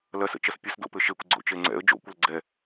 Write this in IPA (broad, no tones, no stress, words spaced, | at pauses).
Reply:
lɐsə̰t͡ʃɐs pʲəsdo̰pɘ ʃekʷɡ͡ǀo̰t͡ʃe ŋ͡ǀɛ̰ə̯ d͡ʒo̰kʷɐl ɡ͡ǀɛ